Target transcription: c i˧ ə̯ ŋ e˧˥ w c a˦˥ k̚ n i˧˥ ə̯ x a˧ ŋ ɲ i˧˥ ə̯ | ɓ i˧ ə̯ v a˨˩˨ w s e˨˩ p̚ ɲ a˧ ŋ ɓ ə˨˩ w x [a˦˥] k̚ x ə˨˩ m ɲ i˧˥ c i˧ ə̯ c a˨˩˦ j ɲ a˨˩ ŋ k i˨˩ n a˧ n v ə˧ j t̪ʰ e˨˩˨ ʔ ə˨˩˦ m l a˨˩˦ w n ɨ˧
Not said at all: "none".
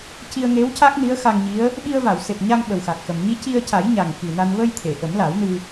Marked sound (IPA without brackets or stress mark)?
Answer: a˨˩